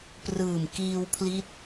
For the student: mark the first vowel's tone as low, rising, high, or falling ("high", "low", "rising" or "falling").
low